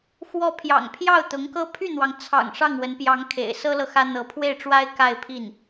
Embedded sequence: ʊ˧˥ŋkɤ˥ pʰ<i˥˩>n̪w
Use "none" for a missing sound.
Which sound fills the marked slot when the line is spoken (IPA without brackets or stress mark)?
y˥˩